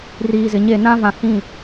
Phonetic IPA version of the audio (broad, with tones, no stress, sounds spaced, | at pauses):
r iː˨ z ɪ˨ ɲ e˦˨ n ã˦ v ã˨ h ĩ˦˨